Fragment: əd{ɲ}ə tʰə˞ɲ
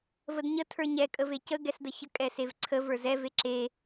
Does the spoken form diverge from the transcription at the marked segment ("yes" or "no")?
no